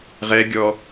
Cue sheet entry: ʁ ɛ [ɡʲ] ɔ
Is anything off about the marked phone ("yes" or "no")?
no